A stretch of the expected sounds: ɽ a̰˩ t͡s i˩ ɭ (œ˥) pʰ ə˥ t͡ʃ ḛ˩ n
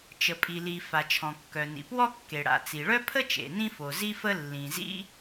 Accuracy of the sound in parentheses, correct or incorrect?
correct